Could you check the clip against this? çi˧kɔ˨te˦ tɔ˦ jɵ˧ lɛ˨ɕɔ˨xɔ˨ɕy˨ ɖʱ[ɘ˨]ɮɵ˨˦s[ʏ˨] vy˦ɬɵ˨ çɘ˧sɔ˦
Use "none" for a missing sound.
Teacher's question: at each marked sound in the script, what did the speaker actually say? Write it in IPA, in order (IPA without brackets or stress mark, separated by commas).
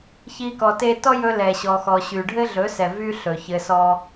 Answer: ɘ˦, ɛ˨